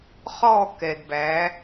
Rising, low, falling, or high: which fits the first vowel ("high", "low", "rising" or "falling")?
falling